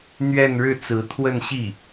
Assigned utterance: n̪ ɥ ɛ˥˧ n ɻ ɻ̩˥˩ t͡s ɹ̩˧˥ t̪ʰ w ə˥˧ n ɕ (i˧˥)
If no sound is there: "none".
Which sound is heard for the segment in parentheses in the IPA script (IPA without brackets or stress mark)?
i˥˩